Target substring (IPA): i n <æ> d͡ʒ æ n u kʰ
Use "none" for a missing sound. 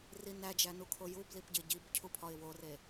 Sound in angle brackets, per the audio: æ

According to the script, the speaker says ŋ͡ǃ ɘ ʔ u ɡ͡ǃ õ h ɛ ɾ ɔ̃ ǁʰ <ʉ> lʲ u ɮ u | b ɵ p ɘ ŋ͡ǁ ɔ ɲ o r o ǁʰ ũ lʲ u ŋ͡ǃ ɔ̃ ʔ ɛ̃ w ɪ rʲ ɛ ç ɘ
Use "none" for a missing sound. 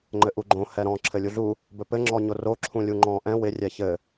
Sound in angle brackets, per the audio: ɘ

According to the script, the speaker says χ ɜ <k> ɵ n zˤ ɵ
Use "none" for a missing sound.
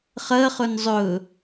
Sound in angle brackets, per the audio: χ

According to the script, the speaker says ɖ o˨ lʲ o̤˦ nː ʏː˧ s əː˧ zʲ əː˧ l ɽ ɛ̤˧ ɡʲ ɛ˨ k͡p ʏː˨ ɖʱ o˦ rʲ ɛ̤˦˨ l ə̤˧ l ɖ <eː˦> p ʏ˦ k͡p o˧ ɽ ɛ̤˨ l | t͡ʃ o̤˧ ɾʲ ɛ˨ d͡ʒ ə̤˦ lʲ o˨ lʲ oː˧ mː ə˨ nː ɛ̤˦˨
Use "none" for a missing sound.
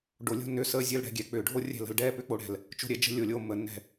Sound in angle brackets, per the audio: ɛː˦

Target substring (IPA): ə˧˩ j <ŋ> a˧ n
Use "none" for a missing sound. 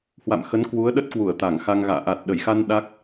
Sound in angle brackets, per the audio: x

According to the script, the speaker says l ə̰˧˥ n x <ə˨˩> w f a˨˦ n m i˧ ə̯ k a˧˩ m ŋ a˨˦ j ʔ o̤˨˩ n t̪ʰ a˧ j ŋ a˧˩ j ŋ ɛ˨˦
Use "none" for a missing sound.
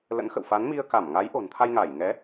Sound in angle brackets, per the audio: ə̰˧˨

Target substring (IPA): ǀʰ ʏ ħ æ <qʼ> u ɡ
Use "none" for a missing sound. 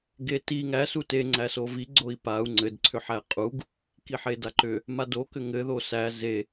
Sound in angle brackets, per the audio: qʼ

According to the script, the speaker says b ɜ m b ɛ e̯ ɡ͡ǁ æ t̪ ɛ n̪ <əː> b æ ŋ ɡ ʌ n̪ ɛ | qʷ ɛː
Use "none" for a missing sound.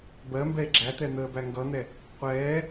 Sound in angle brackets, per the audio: əː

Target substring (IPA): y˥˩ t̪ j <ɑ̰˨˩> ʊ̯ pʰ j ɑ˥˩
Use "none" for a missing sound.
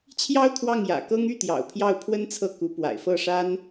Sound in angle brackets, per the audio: ɑ̰˨˩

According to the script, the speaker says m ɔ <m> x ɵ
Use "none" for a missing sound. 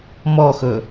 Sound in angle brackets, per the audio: none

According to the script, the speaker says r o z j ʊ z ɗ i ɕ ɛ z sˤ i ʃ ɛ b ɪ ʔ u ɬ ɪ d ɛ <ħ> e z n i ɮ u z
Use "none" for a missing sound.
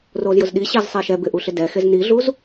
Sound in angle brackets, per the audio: x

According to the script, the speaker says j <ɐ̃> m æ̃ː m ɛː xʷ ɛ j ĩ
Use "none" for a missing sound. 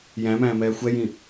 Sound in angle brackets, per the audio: æ̃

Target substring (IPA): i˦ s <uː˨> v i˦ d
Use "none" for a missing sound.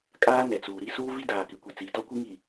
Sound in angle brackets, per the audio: uː˦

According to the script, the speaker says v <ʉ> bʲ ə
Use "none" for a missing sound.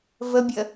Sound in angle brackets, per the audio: ə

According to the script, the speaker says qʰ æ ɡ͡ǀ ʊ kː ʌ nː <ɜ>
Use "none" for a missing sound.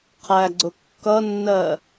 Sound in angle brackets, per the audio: ɜ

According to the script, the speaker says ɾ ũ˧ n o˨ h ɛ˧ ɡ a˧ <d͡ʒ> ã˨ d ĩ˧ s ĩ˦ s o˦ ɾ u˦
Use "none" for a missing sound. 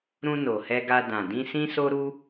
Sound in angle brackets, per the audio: d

